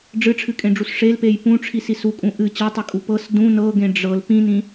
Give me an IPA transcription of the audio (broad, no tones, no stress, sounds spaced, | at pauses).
ɖ͡ʐ ɨ ʈ͡ʂʰ ɨ kʼ ẽ ɖ͡ʐ u s ʂ e l p e j p ũ ʈ͡ʂʰ i s i s u kʼ ũ ʔ ɨ t͡ɕ ɤ tˤ ɨ kʼ u p ɤ s d ũ n ɤ ɡ ẽ ɖ͡ʐ ɤ l p ĩ n ĩ